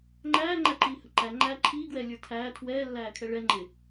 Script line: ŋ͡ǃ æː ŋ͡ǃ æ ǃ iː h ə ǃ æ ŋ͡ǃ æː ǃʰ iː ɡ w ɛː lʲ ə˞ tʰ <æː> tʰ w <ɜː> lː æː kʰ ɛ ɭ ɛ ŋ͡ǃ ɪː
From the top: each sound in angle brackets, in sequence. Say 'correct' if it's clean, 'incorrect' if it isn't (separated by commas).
correct, incorrect